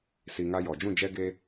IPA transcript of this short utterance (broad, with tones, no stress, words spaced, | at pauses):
si˧ŋa˦jɔ˨ d͡ʒũ˦˨d͡ʒɛ˦ɡeː˦